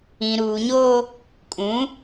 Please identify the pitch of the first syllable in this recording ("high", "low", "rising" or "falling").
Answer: low